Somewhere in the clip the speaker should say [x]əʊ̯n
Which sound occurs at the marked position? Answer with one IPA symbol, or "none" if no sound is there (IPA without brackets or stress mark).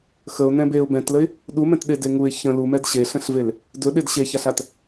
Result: x